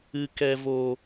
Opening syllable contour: low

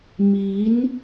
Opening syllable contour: rising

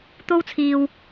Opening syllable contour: high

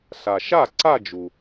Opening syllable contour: low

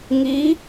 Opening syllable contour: rising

